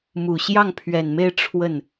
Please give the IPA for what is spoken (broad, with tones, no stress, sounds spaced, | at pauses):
m u˨˩ ɕ j ɑ˥˩ ŋ pʰ ɥ ɛ˨˩ n m e˥˧ ɪ̯ ʈ͡ʂʰ w ə˥˩ n